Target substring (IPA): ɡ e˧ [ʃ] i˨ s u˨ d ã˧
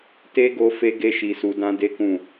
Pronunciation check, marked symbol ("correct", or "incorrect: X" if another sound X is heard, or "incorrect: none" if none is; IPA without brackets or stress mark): correct